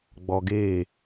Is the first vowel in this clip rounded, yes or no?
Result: yes